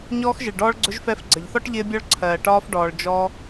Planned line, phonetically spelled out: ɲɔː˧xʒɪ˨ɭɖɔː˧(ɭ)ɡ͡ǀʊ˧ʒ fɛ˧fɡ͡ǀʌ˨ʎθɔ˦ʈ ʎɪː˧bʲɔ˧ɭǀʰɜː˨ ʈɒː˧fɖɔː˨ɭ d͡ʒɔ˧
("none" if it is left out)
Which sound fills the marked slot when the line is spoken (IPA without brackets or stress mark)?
ɭ